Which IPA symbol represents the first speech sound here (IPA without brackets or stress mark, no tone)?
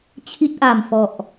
t͡ɕʰ